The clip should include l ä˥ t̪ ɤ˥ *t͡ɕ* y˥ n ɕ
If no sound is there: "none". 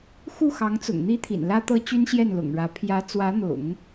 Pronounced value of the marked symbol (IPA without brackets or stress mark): t͡ɕ